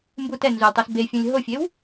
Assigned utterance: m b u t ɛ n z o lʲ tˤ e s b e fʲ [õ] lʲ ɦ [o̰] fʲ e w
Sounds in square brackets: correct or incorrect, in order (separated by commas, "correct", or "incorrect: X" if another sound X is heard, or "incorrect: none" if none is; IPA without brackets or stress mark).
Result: correct, incorrect: o